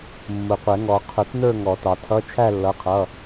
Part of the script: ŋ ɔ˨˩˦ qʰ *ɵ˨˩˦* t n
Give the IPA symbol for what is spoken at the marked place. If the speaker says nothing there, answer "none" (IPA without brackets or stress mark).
ʊ˨˩˦